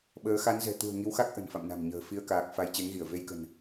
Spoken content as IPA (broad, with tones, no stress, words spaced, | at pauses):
ɓəː˨˦ xa˨˦nzɛ̤˨˩t̪ṳ˨˩ə̯ ŋi˨˦wxa˦˥k̚ ʔə̤˨˩nfa̰˧˨mna̤˨˩mɲə̤ː˨˩ fi˧ə̯kaː˨˩k̚ fa˧jt͡ɕe˨˦ŋɣi˧˩ə̯ ve˧jkə̤˨˩n